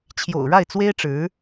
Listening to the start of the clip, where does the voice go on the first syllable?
low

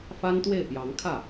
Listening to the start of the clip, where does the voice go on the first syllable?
high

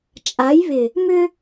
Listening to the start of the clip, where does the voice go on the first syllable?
rising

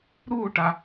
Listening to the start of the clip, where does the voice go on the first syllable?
falling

